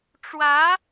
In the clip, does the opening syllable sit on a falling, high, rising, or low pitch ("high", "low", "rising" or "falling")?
rising